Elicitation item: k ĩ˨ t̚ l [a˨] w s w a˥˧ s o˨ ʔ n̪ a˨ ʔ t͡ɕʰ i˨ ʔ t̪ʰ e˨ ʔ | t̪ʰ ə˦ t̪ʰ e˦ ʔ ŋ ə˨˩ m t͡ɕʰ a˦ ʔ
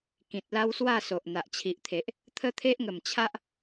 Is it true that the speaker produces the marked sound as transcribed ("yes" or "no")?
no